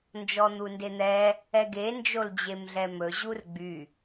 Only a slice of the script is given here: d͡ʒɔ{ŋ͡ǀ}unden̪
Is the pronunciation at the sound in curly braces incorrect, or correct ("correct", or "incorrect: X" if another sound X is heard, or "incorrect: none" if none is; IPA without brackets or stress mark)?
incorrect: n̪